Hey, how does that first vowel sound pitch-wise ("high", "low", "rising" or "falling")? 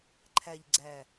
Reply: low